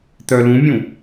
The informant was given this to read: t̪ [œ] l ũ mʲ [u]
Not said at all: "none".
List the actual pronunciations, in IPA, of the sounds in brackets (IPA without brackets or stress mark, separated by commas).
œ, ũ